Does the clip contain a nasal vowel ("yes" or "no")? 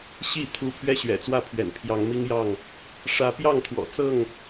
no